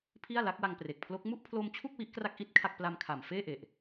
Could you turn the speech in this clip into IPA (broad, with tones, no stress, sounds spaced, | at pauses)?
pʰ i˥˩ a̯ l a˦˥ k̚ w a˧ ŋ p r e˨˩ k̚ pʰ l o˦˥ k̚ m u˥˩ ʔ pʰ l o˧ m t͡ɕʰ u˥˩ k̚ w i˦˥ ʔ k r a˦˥ k̚ ʔ i˥˩ t̚ kʰ a˥˩ k̚ p l a˧ m kʰ a˨˩ m f eː˥˩ ʔ e˨˩ ʔ